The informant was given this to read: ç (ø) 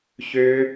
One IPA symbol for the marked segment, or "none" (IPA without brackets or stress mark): ø